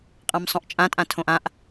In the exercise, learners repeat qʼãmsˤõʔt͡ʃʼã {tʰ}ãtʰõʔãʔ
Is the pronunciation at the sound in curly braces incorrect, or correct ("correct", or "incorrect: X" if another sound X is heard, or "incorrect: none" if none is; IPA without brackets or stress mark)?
incorrect: tʼ